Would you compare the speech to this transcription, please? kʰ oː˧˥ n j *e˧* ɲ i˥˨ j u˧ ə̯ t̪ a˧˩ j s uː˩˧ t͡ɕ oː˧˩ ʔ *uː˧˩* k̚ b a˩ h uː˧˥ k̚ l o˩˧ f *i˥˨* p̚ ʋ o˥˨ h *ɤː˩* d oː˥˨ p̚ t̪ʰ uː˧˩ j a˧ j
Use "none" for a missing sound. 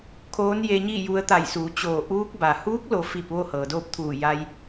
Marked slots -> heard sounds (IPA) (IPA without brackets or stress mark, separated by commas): e˧, uː˧˥, i˥˨, ɤː˩